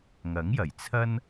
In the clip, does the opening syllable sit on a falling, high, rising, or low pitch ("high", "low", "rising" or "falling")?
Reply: rising